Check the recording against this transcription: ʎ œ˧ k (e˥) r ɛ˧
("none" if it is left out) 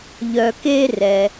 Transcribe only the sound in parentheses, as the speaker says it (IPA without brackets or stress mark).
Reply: e˥